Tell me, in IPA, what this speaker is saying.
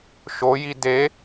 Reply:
ʃ o j i d e

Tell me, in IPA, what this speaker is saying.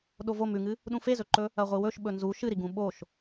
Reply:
ɗ o v o m ʉ ŋ ɨ | ɗ ũ f e z ɵ ǃ ɵ | ɐ ʁʷ ɨ w ɵ ʃ ɓ ɵ n z u ʃ ɨ ɾ i ɡ ũ ɓ o ʃ

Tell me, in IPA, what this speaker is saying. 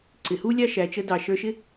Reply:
ǀ ɪ˩ h u˥ lʲ ɑ˥ ʃ æ˩ t͡ʃ ə˧ d ɑ˩ ʃ ə˞˧ ʃ ɪ˥

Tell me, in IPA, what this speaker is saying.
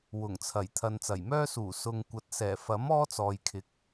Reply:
w ʊ˨˩ ŋ t͡sʰ ɐ˨˩ j t̪ʰ ɐ˨ n t͡s ɐ˨˩ j m œː˥ s uː˨˩ s ʊ˨ ŋ kʷ ɐ˨ t̚ s ɛː˨˩ f ɐ˨˥ m ɔː˥ t͡s ɔː˨ j kʰ ɪ˨ k̚

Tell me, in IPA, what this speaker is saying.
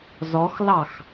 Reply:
z ɔ x l ɑ x

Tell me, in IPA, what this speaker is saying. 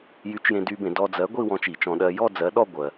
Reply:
j y˨˥ t͡ʃ j ẽ˧ d y˧ b ẽ˧˩˧ d ɔ˧ d͡z ɜ˨˥ ɡʷ i˥˧ w ɔ̃˧ t͡ʃ i˧˩˧ t͡ʃ ɔ̃˧ ɗ ɜ˧ j ɔ˥˧ d͡z ɜ˨˥ ɗ ɔ˥˧ ɡʷ ɜ˧

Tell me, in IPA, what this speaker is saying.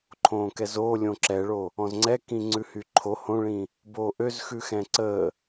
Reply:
ǃʰ õː k ɛ z oː lʲ õ ǁ ɛ ɭ o | ɔ̃ z ŋ͡ǀ ɛ k ĩ ŋ͡ǀ ʉ h y ǃʰ o h õ ɭ ĩ | b oː ʔ ø z x ʉ x ɛ̃ ǀ əː

